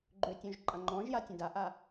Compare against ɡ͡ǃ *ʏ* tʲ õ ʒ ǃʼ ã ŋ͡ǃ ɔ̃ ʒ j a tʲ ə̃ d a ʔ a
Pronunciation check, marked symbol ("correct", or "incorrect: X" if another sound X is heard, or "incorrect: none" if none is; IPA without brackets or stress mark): correct